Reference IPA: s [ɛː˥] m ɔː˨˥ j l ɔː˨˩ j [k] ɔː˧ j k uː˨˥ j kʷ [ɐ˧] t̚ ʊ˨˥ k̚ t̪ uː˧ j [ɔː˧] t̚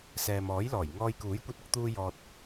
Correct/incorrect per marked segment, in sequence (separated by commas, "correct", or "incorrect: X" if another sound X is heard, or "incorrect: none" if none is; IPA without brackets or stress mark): incorrect: ɛː˨, incorrect: ŋ, correct, incorrect: ɔː˨